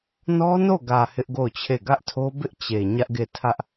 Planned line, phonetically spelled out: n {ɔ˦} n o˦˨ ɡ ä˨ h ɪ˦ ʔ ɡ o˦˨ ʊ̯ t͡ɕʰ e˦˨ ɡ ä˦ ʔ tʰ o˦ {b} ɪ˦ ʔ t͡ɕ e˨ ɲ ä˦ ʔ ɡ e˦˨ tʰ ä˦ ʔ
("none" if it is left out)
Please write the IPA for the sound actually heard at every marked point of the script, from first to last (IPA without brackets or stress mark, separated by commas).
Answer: ɔ˦, b